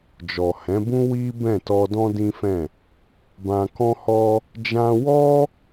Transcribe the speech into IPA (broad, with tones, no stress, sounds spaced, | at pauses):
d͡ʒ ɔ˨ h ɛ̃˨˦ b ũ˦ w i˦ b ɛ̃˦˨ t ɔ˧ d ɔ̃˦ d ĩ˦ f ɛ̃˦˨ | b ã˧ k ɔ̃˦ h ɔ˦ | d͡ʒ ã˧ w ɔ˦